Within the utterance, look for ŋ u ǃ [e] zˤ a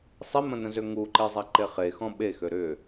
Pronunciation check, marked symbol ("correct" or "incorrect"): correct